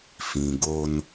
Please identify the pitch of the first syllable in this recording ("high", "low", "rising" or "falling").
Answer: low